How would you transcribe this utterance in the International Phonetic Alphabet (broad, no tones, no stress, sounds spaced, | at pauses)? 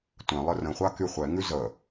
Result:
tʷ ɛ̃ lˠ ə r ə̃ χʷ a k y χʷ ɛ ŋ ʉ z ə